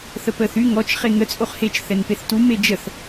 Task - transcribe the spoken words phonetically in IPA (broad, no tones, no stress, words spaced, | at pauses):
θəpəːθy ŋɔt͡ʃ χeŋə t͡sʼoχhet͡ʃ θɛnpeθtu med͡ʒəθ